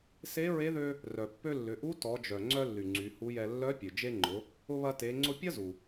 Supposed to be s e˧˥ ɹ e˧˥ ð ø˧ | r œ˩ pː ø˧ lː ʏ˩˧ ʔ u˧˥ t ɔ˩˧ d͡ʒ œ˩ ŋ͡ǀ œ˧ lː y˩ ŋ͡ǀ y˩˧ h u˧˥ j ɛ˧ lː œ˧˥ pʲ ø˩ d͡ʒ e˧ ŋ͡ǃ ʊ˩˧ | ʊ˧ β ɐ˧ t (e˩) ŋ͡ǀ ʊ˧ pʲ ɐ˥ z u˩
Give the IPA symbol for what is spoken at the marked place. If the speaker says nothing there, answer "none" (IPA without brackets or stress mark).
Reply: e˩˧